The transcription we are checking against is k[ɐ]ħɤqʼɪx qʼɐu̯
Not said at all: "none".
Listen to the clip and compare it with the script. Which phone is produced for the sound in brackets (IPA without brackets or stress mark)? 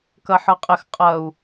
ɐ